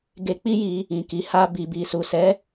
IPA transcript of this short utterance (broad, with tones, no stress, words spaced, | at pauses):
ɡe˧k͡pi˦ji˧ | ĩ˨ki˨ha˧ bi˨bi˨su˨ sɛ˨˦